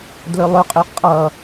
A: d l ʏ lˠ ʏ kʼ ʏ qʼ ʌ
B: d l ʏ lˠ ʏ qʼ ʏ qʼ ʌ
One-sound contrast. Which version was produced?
B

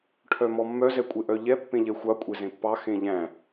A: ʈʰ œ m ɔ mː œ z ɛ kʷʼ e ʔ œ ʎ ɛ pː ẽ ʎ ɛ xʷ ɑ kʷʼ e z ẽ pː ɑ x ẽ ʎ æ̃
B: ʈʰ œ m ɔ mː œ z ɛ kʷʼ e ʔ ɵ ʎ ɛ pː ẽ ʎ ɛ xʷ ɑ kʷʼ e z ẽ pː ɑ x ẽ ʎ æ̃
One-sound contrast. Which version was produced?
A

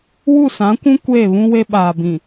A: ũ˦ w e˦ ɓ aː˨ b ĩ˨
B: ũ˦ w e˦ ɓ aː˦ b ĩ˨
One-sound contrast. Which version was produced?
A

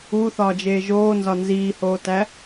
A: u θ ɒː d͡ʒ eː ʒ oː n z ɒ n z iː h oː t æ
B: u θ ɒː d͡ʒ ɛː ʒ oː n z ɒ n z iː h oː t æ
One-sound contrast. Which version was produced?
A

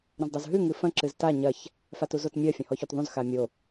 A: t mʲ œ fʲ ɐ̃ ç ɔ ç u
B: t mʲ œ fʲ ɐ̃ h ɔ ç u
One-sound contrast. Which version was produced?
B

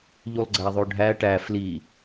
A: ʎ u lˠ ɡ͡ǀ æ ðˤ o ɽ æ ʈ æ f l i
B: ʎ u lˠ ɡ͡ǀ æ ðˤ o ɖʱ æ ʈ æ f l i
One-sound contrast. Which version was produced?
B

